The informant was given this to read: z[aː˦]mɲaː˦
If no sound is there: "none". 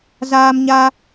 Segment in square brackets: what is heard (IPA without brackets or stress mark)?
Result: aː˦